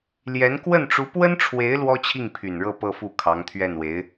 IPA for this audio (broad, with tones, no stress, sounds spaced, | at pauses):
l j ɛ˧˥ n k w ə˥˩ n ʈ͡ʂ u˧˥ p w ə˥ n ʈ͡ʂʰ w e˧˥ ɪ̯ l w ɔ˥ t͡ɕʰ i˥˩ ŋ pʰ y˨˩ n ɻ ɤ˥˧ p ɤ˥˧ f u˥˩ kʰ ɑ˧˥ ŋ t̪ʰ ɥ ɛ˥˩ n w e˧˥ ɪ̯